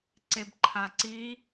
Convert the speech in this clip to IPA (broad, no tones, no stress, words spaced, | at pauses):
ǀebǃʰaǀi